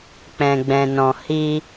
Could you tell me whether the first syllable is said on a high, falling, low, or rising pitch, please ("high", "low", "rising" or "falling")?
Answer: low